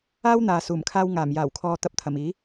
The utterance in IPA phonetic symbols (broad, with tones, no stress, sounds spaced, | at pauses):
aː˥ w n̪ aː˨ s uː˨˩ m kʰ aː˧ w ŋ aː˨˩ m j aː˨˩ w kʰ ɔː˨ t̪ ɐ˧ p̚ t̪ʰ ɐ˨˩ m iː˨˥